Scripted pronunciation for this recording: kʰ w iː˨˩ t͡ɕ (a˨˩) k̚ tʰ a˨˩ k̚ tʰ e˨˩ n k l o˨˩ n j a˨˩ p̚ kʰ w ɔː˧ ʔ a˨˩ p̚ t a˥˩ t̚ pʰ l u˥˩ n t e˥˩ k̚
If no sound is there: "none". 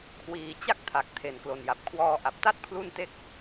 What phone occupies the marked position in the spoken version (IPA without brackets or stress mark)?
a˦˥